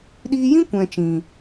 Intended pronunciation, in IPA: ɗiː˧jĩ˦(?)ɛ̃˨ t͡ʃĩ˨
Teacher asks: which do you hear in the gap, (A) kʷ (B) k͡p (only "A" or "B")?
A